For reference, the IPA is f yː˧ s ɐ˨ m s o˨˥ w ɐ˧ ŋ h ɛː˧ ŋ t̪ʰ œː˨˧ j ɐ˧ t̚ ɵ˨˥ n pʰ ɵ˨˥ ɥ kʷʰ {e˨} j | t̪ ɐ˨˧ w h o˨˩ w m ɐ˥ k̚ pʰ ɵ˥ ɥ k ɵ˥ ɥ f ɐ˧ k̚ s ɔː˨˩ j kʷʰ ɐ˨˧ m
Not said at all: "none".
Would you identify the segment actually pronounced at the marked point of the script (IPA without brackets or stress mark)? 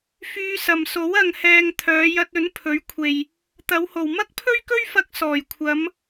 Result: e˨